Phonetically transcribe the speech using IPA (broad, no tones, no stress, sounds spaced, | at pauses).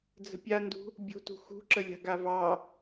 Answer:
d͡z ə̤ pʲ a n d ṳ | bʲ o̤ t ṳ x ṳ ǁ ə lʲ a̤ ɡ a v ɑ